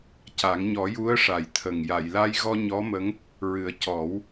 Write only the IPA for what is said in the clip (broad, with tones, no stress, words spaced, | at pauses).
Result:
ca˨˩˦ŋ ɲɔ˨˩˦ju˧˥ə̯ ʂa˨˩jt̪ʰə˨˩ŋ ja˨˩˨jla˧jɣɔ˧ ɲɔ˧˥mə˧˥ŋ | ɹɨ˨˩˦ə̯ cɔ˨˩˦w